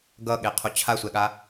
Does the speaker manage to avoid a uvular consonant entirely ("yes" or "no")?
no